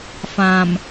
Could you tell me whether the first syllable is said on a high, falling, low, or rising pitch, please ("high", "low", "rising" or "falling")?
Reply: low